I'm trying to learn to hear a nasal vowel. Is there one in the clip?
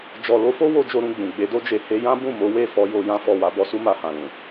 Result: yes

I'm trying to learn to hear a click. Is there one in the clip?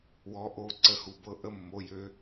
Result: yes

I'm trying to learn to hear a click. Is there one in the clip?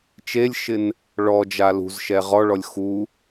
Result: no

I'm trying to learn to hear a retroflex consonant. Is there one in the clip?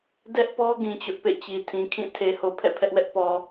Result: no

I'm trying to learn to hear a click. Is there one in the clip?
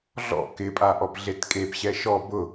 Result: no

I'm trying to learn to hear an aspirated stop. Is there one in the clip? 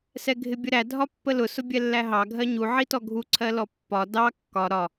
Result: yes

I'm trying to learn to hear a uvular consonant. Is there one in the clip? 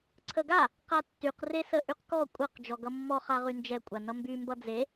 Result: yes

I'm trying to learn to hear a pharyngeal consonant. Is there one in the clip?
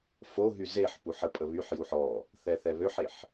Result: yes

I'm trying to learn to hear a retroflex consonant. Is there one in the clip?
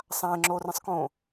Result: no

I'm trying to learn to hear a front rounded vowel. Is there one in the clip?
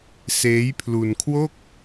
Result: no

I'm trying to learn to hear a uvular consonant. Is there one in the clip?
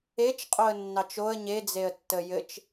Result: yes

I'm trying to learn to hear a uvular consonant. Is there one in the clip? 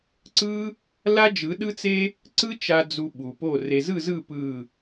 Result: no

